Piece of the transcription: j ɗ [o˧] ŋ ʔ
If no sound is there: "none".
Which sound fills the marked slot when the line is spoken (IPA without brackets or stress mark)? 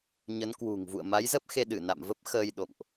o̰˧˨